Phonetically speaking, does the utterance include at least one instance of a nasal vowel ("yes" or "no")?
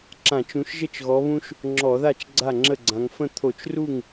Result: yes